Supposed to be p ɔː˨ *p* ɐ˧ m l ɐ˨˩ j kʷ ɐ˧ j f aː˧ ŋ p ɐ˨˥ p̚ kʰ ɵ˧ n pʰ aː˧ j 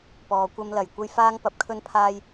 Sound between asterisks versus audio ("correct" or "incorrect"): incorrect